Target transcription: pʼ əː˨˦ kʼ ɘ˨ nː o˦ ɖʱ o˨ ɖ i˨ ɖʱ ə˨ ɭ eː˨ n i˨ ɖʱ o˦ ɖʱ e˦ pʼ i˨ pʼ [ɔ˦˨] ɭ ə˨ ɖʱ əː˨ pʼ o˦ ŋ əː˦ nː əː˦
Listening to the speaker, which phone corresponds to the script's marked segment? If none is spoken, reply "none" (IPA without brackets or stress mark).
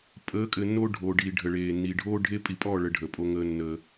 ɔ˦˨